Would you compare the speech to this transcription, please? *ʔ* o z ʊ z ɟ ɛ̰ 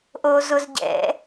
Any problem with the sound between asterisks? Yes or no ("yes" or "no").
no